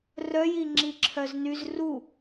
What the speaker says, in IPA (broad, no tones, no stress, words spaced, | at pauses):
rœji ŋ͡ǁiǁʰœznyz ru